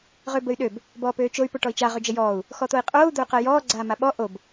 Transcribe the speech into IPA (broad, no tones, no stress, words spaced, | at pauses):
ʁøbəy̯ɗøb | bɔːpøːt͡ʃoy̯ poʈɔi̯t͡ʃa ʁød͡ʒəjɔːu̯ | xɔt̪oi̯qʼoːu̯ d̪oy̯qəːjɔː ɡ͡ǀaːmaɓɔ ʔob